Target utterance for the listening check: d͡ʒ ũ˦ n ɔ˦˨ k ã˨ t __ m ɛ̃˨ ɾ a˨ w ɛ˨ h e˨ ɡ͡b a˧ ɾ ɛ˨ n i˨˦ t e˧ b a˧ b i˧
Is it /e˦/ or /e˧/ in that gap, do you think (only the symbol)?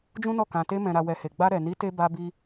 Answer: e˧